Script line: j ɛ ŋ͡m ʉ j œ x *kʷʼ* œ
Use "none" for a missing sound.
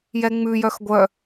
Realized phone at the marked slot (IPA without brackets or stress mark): ɡʷ